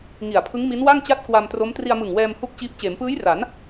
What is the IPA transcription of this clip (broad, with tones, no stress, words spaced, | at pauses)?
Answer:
ŋi˨˩a̯pʰɯ˦˥ŋ mi˦˥nwa˥˩ŋ t͡ɕa˥˩t̚kwa˧mtro˦˥m tri˧a̯mɯ˨˩ŋwɛː˧m hu˥˩k̚t͡ɕiː˦˥p̚ t͡ɕeː˩˦mpɯː˦˥jra˩˦n